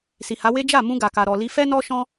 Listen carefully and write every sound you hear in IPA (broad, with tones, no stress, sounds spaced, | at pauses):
s i˨ h a˨˦ w e˦ d͡ʒ a˦˨ m ũ˧ ɡ a˨ k a˨ ɾ ɔ˨ l i˧ f ɛ˦ n ɔ˦ ʃ ɔ̃˦